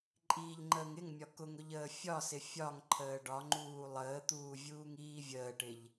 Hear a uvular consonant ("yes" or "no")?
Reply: no